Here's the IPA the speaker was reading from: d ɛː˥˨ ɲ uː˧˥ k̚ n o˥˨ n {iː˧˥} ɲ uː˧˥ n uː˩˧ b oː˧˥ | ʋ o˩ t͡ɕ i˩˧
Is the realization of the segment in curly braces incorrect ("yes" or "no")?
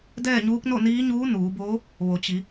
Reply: no